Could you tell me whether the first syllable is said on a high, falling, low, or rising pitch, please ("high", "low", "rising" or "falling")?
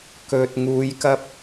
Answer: low